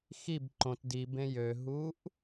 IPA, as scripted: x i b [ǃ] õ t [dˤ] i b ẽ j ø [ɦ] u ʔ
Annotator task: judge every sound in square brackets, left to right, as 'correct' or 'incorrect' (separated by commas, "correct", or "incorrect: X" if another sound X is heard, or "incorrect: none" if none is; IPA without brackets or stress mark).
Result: correct, incorrect: d, correct